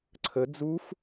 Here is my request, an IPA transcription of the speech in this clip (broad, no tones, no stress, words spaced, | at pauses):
ǀʰə d͡zuf